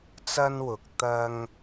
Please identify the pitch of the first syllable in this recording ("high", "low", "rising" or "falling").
high